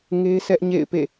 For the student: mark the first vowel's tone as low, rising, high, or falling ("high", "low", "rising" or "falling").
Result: high